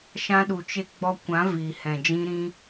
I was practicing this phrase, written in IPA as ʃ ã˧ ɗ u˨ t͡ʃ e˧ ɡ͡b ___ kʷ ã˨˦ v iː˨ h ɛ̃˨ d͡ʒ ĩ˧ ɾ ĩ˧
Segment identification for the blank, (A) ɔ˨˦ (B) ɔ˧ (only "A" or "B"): B